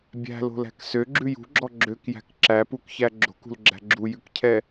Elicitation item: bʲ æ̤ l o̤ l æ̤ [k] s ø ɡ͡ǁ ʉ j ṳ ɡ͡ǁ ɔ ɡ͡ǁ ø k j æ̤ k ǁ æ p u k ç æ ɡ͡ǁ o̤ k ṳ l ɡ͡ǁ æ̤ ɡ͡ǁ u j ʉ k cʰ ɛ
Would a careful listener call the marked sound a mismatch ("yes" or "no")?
no